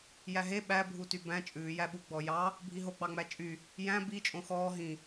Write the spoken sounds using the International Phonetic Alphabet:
j æ ɦ e ɓ æ bʱ u t y b æ̃ t͡ʃʼ ʉː j æ ɓ u ɡ͡b ɔ j ɑ | bʱ i ɦ o ɡ͡b ɑ ŋ͡m æ t͡ʃʼ y | j æ̃ b i t͡ʃʼ õ x ɔː ɦ ĩ

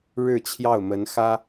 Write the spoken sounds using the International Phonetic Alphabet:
ɻ ɻ̩˥˧ t͡ɕʰ j ɑ˥˩ ʊ̯ m ə˧˥ n x ä˥

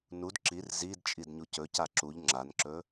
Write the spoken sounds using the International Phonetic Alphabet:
n u d ǁ i r z i d t͡ʃʼ i d ɲ u c ɵ c a ǁ u ʎ ŋ͡ǁ a n ǁ ɵ

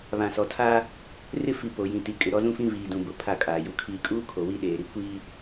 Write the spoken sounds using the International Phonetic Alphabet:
β ã˨ s ɔ˨ tʰ aː˦ | r ɪ˦ f i˨ p o˨ j ĩ˨ t i˨ kʼ ɪ˨ ɾ ɔ˦ z ũ˦ f ĩ˦ v iː˨ d ũ˨ b ʊ˨ pʰ a˦˨ kʼ aː˨ j u˨ kʰ iː˨ kʼ uː˦ kʰ o˨ w i˦ ɗ eː˨ ɾ i˦ kʷ iː˦

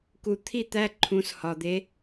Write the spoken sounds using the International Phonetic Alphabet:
k u˨ t̪ʰ i˥˨ t̪ æ˧˥˧ ǃʰ ũ˩˥ s h ɒ˨ d̪ e˧˥

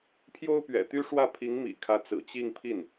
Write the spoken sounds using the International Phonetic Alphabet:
pʰ j o˥ ʊ̯ p ɥ ɛ̰˨˩ t̪ y˥ ʂ w ä˥˩ pʰ i˧˥ ŋ m ḭ˨˩ kʰ ä˧˥ t͡s ɹ̩˨˩ t͡ɕ i˥˧ ŋ pʰ i˥˩ n

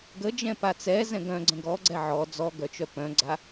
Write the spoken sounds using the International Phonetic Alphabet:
ɡ ə d͡ʒ ɛ̃ p a t͡s ɛ z ɛ̃ ɡ œ̃ ɡ͡ǀ ə̃ ɡ ɔ ɡ͡ǀ ɛ ʕ ɔ d͡z ɔ ɡ œ t͡ʃ œ p œ̃ ɡ͡ǀ a

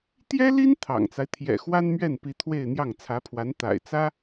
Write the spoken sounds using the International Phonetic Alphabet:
t̪ j ɛ˥ l i˥ n t̪ʰ ɑ̰˨˩ ŋ t͡s a˦ ɪ̯ t̪ʰ j ɛ̰˨˩ x w a˥ n m ɥ ɛ˥˩ n p i˧˥ t̪ʰ w e˥˧ ɪ̯ n̪ j ɑ˥˩ ŋ t͡sʰ ä˧˥ pʰ w a˧˥ n t̪ a̰˨˩ ɪ̯ t͡s ä˥

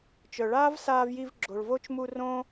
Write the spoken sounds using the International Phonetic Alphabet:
t͡ʃ œ˨ ɭ aː˦ v s aː˧ v j i˧ v ɡ͡ǁ o˨ ɭ v o˦ t͡ʃ m u˧ r õ˦

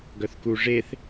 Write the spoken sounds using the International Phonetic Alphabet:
ɡ œ θ k u ʐ e θ

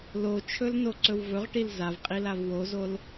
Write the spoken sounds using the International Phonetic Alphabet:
l o t͡ʃʰ ɵ l n o ǀ ɵ w v ɵ ʁ ʈ i l z a v qʼ i l a v w o z o l

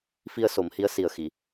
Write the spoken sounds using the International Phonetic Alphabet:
f i˧ ə̯ s o˨˩˦ m h i˧˥ ə̯ s i˨˩ ə̯ x i˨˩˨

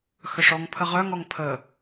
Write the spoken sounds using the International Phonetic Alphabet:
x œ ʂ ɔ ŋ pʰ ə ʁ œ ŋ ɔ ŋ pʰ ə

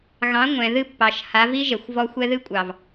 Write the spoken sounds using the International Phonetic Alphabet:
ɣ ɑ̃˨˦ ŋʷ ɛ̃˨ ð ɨ˦ pː ɑ˨ ʃ h a˨˦ v i˦ ʒ ɛ˨ xʷ v ɔ˧ xʷ ɛ˧ ð ɨ˧ kʷʼ ɑ˨ v

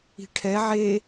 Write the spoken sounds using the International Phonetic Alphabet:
i̤ ʈʰ ɛ ʕ e

